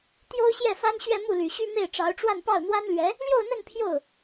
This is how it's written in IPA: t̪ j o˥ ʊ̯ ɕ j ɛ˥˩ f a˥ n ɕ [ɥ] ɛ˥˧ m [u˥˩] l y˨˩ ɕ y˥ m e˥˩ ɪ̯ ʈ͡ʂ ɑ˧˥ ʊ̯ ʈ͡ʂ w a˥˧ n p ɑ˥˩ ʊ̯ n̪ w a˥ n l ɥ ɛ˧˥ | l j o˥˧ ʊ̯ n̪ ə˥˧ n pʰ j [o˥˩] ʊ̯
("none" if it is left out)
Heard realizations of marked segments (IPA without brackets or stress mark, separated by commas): ɥ, u˥˩, o˥˩